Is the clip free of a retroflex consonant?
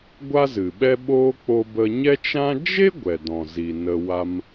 yes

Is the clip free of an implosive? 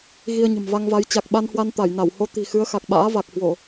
no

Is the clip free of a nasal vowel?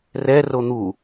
yes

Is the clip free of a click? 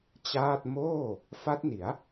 yes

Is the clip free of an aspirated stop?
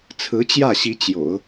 no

